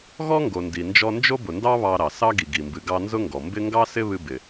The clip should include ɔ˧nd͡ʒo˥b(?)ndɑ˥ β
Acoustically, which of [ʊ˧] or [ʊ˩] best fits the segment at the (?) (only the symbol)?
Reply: ʊ˩